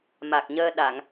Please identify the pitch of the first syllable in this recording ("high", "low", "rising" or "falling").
low